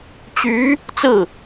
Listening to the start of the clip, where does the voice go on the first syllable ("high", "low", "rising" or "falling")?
rising